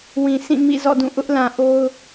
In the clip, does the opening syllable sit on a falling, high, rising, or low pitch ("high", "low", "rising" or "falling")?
low